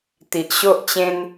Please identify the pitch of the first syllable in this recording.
low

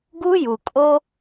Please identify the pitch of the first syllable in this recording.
high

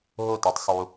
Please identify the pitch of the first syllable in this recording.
falling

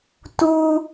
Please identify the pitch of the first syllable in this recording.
low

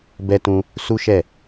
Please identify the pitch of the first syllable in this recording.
high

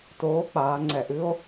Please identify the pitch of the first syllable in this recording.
rising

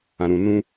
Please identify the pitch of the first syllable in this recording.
low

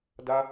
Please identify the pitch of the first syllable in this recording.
high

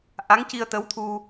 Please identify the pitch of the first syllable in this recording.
rising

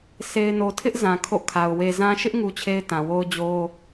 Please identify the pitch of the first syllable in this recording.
low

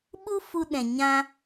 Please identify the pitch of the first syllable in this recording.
high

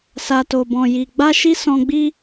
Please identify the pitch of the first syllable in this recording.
low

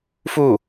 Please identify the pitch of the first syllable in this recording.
falling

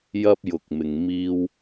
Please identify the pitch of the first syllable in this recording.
high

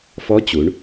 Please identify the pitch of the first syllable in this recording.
rising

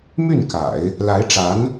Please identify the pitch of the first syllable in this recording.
falling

